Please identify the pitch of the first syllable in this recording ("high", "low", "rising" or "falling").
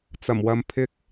low